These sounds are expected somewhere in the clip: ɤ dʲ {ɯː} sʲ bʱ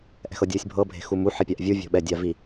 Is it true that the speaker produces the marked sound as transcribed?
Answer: yes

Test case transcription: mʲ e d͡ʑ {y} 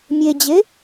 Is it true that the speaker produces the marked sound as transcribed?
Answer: no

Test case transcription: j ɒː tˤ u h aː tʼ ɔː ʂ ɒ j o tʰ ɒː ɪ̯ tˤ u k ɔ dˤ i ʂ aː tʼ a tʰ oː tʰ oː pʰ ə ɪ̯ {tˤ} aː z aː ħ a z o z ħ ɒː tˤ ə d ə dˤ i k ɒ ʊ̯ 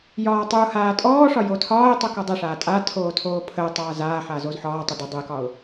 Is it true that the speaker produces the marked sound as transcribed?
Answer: yes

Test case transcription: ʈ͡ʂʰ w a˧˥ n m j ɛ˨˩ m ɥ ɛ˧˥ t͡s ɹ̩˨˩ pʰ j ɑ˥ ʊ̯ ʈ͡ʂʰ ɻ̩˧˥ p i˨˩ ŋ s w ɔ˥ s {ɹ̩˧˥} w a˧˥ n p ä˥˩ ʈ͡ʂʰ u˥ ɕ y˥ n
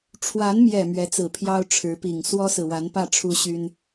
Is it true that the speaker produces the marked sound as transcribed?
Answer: no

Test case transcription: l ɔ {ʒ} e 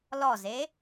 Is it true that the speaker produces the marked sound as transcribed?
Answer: no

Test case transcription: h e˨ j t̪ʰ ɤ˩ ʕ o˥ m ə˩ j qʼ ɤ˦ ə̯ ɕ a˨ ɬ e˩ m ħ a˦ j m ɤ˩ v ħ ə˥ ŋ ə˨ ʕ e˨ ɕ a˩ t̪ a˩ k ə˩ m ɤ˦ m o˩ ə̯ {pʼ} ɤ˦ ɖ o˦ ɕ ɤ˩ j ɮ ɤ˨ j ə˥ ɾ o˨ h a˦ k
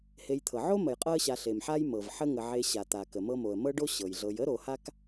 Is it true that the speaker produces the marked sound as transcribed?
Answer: no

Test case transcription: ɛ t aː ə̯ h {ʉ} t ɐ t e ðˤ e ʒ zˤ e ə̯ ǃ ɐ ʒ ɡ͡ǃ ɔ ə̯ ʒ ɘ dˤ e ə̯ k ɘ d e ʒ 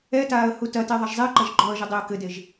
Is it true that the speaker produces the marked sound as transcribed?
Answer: no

